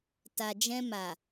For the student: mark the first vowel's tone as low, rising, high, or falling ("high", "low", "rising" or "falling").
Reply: low